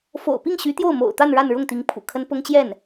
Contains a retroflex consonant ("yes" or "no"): yes